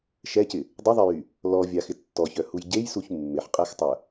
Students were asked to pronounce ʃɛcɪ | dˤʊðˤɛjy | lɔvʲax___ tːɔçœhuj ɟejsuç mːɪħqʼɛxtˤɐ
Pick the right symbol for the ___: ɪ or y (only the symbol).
ɪ